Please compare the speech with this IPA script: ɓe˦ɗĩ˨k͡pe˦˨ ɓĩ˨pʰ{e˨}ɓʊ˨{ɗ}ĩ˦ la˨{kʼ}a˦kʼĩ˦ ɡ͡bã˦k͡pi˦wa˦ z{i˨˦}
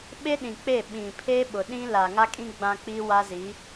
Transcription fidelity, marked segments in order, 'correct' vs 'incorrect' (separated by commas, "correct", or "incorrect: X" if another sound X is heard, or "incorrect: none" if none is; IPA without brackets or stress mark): incorrect: e˦, correct, incorrect: ŋ, correct